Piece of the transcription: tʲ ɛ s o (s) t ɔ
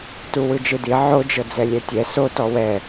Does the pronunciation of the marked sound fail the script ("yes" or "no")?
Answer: yes